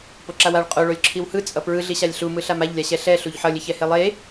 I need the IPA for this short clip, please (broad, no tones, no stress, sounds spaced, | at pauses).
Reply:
p o ǁ a w a ɭ qʼ o ɭ o lʲ ǁʰ i w h ɯ t͡sʼ ʌ p ɹ ɯ ɮ i ɕ a lʲ ɬ u m ɯ ɬ a m a ʎ lʲ a ɕ ɛ ɬ ɛ ɬ u ʎ ħ ʌ lʲ e ç ɛ h e lˠ e